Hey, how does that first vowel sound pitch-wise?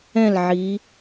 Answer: falling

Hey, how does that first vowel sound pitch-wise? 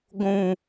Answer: low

